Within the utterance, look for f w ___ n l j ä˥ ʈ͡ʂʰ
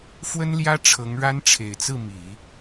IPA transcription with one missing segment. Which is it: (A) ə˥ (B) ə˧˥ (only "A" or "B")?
A